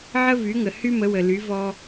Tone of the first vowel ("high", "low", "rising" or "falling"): high